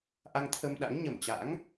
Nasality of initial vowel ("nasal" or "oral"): oral